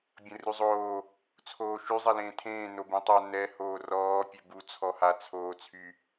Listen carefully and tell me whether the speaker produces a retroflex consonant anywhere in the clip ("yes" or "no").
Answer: no